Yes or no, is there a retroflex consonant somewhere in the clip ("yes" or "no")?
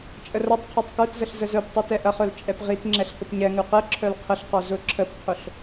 no